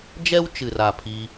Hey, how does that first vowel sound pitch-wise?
high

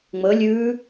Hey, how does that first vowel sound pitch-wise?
rising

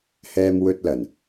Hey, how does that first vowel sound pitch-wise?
high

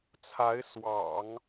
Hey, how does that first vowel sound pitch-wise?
rising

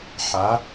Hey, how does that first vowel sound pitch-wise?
rising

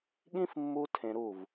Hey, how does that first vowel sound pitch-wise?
high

